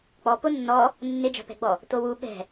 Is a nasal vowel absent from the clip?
yes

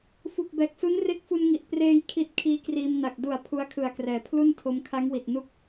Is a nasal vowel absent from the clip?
yes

